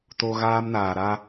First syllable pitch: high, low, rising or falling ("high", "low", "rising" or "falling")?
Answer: high